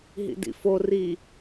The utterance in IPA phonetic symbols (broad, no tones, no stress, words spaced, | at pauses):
ɦḭdḭfo ri